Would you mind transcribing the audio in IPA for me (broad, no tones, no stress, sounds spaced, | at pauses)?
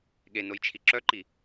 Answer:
ɠ e n o j t͡ʃʰ i ǁ œ ǃ i